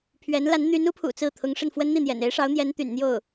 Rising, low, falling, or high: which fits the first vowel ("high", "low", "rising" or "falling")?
rising